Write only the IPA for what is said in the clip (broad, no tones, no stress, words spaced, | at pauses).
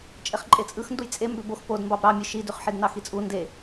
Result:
t͡ʃʼeχǃʼet͡sʼɯxnduj t͡sʼe mbøbox pod mbɑbɾɑmʲɯ ʃidyχħidnɑ xit͡sʼu nde